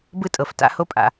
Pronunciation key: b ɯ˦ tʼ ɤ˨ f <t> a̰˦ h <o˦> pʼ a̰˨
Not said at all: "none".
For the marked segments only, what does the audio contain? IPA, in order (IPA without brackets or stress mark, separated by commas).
t, o˦